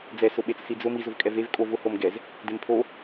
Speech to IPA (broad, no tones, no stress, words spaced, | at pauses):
d͡zɛsʊɓet͡s sid͡zʊ miz ʊvkʼɛvev kʼov ʊhom ɡɛz | dempʰo